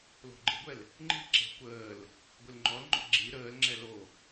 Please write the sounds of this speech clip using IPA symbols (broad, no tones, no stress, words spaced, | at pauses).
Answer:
lo̤ɡ͡ǃe̤ɡʷɛl | ŋ͡ǃi̤ǁe̤ kʷəːl | ɡʷilŋ͡ǃɔlŋ͡ǃɔ̰ ɡ͡ǁi ɾəːlŋ͡ǁɛ lo